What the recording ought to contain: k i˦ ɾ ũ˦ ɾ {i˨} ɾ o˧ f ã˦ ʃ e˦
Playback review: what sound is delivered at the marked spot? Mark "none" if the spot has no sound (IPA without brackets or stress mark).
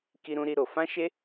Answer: i˦